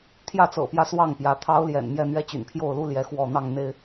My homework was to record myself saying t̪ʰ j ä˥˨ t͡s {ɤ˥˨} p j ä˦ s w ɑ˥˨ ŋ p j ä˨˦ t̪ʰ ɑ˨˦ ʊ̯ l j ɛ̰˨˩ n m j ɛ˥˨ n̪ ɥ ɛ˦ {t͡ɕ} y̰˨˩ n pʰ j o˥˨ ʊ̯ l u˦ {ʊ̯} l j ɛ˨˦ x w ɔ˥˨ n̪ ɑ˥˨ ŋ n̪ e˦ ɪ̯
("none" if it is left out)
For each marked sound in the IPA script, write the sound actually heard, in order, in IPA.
ɤ̰˨˩, t͡ɕ, none

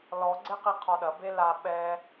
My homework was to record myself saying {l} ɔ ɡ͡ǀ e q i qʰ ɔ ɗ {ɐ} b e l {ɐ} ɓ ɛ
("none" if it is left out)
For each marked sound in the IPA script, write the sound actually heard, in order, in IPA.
l, ɐ, a

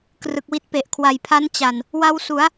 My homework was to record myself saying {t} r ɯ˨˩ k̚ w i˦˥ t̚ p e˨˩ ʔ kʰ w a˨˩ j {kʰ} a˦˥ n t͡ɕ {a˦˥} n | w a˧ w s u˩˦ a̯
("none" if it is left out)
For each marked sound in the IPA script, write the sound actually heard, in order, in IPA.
k, pʰ, a˨˩

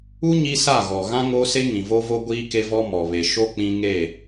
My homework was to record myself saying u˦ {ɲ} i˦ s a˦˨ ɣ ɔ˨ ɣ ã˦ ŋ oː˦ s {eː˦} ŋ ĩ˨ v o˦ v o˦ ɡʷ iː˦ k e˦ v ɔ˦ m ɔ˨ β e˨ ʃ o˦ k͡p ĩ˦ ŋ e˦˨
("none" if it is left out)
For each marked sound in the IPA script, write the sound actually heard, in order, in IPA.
ɲ, e˦

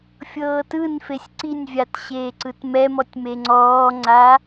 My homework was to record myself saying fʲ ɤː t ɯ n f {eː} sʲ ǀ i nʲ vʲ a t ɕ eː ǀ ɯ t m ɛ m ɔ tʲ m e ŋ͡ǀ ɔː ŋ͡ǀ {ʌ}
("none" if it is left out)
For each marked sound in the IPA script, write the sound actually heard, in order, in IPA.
e, a

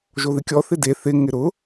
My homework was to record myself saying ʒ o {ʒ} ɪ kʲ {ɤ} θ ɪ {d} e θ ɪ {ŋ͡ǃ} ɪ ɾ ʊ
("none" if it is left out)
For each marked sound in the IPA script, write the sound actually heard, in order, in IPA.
ð, ɔ, d, ŋ

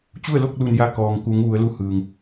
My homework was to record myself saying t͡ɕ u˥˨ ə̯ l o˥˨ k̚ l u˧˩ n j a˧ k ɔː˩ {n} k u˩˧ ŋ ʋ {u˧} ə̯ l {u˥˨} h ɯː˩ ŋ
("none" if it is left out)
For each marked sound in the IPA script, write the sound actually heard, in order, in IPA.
ŋ, u˩˧, u˧˥

